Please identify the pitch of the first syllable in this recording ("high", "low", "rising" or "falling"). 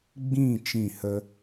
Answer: falling